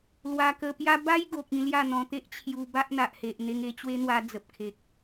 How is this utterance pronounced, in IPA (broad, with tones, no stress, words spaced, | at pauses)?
lwa˧kə˧pja˦ ba˦jɡo˨k̚ ĩ˧lja˥˧n̪ɔ̃˧t̪e˦ʔ t͡ɕʰju˧ ba˦ʔn̪a˨ʔhe˨ʔ n̪e˧ŋe˥˧t͡ɕwe˦n̪wa˧ d͡zə˨p̚kʰe˨k̚